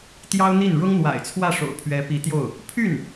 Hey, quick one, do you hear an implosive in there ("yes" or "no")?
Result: no